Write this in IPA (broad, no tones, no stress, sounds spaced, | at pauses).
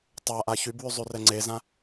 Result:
tˤ a ʔ a ç y b w y zˤ y r ɛ ŋ͡ǀ e z ã